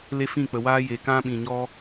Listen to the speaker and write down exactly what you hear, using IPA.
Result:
l e˦ f ĩ˦˨ k͡p ə˨ w aː˦ j e˨ k ã˦ ɓ ĩ˨ ɲ ɔ˧

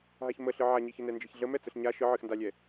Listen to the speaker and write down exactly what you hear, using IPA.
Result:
ɦ a ç m ə ɬ ɨ ʕ a ɲ i ç ə n ɛ n d͡ʒ i ç ɮ ə m ɛ t͡s ə ɬ ɲ a ʃ ɨ ʕ ɨ x n d a lʲ ɛ

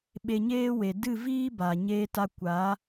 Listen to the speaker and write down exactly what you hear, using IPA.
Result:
ɓ e˧ ɲ eː˦ w e˨ d ɨ˦˨ v iː˦ b a˨ ɲ eː˧ t a˧ kʷ a˨˦

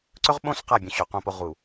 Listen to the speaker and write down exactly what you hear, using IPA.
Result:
ǀ ɵ˦ ʁ ɓ õ˦ s q a˦˨ bʲ õ˨ ɕ ɵ˨ q õ˦˨ p o˦ ʁ u˨

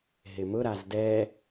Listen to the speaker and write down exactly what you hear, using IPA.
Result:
ɦ ɪ m ʊ ɾ a z d ɛ

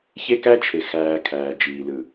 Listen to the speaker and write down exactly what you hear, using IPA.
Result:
ç e˦ k æ˦ t͡ʃʰ e˨ x æː˧ kʰ æː˨ d͡ʒ iː˨ l ɯ˨

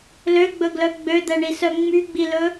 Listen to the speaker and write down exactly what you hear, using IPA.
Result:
l ø ɡ͡b ɵ ɡ l œ ɡ͡b ø d̪ ɛ ɳ i s œ ŋ͡m y ɡ͡b i l ɵ

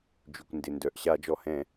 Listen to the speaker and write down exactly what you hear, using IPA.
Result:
d͡ʒ y˩ kʷ n d ɪ˩ n d œ˩ ʔ ɕ a˧˩˧ d͡ʒ ɔ˩ h ɛ̃˧˩˧

